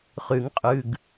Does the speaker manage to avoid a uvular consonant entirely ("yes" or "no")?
no